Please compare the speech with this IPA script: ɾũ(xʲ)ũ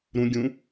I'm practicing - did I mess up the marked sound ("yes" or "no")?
yes